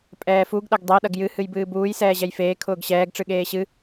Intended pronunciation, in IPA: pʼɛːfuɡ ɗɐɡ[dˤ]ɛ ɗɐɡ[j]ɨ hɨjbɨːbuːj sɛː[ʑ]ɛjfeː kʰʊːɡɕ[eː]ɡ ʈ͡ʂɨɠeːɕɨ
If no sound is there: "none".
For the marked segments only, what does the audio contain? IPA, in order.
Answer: dˤ, j, ʑ, ɛː

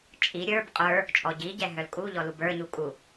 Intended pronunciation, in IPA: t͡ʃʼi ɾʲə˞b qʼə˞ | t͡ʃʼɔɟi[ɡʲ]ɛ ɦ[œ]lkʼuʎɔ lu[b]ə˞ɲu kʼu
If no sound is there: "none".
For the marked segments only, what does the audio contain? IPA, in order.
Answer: ɟ, œ, b

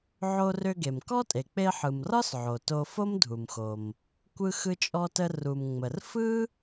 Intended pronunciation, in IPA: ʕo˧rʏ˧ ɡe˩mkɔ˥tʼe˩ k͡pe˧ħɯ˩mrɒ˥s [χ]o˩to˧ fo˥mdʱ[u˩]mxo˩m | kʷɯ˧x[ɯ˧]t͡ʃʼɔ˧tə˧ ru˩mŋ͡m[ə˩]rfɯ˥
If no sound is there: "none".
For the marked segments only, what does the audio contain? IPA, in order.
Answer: ʕ, u˩, ɯ˧, ə˩

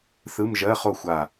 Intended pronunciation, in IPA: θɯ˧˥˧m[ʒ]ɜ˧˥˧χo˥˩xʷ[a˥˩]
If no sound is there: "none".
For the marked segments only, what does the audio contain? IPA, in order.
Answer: ʒ, a˧˩

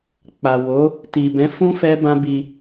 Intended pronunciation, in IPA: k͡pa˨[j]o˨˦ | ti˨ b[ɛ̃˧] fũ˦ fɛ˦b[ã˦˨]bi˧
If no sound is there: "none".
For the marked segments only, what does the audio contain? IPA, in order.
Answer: w, ɛ̃˨˦, ã˦

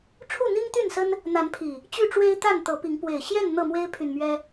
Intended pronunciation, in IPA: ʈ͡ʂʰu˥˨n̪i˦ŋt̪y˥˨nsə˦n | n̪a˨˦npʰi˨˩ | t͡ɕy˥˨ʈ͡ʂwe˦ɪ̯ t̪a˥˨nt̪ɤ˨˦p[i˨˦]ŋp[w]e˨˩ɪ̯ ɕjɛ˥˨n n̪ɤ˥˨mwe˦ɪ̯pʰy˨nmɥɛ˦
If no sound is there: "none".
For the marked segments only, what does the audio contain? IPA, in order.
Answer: i˨˦, w

